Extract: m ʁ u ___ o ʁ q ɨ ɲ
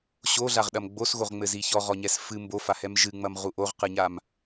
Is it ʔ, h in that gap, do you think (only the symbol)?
ʔ